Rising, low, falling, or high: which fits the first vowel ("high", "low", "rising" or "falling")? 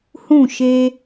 falling